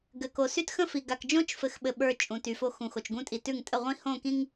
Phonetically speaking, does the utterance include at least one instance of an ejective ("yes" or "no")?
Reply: yes